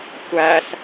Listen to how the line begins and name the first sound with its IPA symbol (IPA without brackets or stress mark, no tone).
tʷ